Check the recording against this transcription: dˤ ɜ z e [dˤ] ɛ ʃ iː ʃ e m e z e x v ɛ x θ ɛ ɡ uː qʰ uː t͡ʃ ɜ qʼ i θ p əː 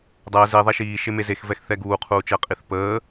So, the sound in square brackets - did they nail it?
no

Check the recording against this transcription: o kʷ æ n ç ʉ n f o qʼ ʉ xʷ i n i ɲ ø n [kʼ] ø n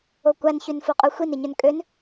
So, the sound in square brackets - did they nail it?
yes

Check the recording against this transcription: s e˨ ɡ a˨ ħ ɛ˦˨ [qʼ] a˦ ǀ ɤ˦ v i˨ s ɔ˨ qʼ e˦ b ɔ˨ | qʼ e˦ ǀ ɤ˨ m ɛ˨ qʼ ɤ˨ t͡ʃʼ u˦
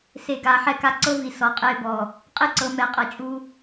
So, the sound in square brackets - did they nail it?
no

